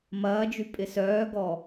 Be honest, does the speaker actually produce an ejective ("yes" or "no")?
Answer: yes